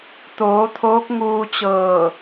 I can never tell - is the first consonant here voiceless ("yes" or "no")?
yes